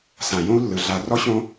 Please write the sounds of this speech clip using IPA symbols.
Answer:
sã˨ jõ˦u̯lːɯ˨ ɮa˨rɔ˦ɕõ˦

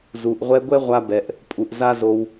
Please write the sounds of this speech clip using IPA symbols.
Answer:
zu˨ʔʁʷɛ˧ɡʷɛ˦ʁʷa˧ bɛ˨ʔ | pʼu˨ʔ za˦zo˧w

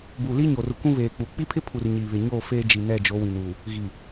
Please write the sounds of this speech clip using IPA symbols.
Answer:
buː˨liː˦ɲo˨rʊ˨ kʷũ˦βeː˨k͡pu˨ k͡pi˦pʰɪ˦pʰu˨r ɲiː˨βɪ˨ɲoː˦˨ feː˦d͡ʒi˨ nɛ˦˨d͡ʒo˨˦wĩ˨n uː˨ | ɣi˨

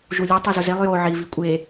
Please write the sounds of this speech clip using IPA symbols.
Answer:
ʒulʲu tˤizʊzelˠ jo ʕi vikʷʼe

